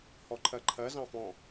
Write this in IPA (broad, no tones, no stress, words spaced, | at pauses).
hɔǃʰɜǃʰɜ zɑ̃fɔ̃